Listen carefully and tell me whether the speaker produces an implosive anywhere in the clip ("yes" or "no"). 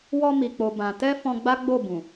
no